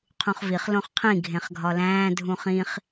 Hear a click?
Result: no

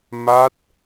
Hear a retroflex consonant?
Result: no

